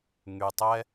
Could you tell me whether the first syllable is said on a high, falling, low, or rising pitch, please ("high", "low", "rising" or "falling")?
low